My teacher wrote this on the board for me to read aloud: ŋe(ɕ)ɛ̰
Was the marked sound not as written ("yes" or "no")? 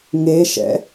yes